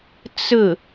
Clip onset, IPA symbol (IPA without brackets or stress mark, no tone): t͡s